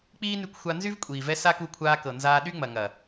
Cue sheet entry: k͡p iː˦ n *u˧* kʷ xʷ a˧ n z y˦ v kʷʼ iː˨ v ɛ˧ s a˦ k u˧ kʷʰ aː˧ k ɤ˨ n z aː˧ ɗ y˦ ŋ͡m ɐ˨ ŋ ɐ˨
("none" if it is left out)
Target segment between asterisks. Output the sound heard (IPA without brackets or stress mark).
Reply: y˧